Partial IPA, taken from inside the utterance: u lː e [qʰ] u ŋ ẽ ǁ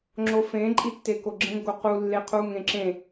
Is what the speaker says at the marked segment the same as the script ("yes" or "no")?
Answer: yes